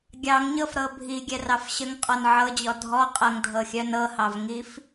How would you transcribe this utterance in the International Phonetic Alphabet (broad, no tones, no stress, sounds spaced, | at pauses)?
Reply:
ɡʲ ɑ ŋ ɲ ɤ f ɾ ɤ bʱ i ɡʲ ɛ r ɑ f ɕ ə ŋ qʼ ɔ n ʕ ɤ d͡ʑ ɔ dʱ ɔ qʼ ɤ ŋ dʱ ɤ xʲ œ n ɤ h ɑ v ŋ i f